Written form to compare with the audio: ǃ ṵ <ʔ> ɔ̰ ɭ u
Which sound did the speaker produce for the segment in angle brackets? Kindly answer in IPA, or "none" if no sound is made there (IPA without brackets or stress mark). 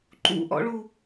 ʔ